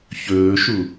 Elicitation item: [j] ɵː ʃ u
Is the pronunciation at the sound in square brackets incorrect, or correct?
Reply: incorrect